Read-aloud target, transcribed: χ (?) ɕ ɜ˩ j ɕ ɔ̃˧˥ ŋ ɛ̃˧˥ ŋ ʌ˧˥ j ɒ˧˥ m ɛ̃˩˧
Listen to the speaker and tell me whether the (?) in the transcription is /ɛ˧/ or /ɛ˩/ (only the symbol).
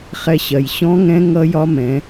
ɛ˧